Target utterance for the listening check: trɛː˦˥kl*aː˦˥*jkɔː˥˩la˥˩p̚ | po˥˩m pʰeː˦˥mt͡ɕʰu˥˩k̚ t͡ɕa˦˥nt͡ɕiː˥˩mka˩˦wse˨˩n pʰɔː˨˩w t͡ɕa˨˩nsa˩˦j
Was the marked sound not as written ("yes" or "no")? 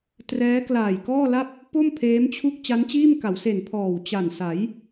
yes